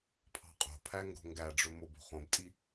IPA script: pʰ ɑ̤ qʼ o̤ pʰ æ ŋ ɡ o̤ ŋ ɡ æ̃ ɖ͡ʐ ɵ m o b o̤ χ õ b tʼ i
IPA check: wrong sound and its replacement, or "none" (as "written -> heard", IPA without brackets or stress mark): æ̃ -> æ